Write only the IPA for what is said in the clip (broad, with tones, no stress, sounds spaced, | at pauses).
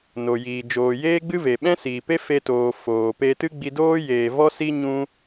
n o˨ j iː˨ d͡ʒ oː˨ j eː˦ ɡ͡b ɨ˦ v e˨ ɓ ɛ̃˦ s iː˨ p e˦ f e˧ t oː˨ f oː˨ p e˧ t ɨ˦ ɡ͡b i˧ d oː˦ j eː˧ v ɔ˦ s i˦ ɲ ũ˦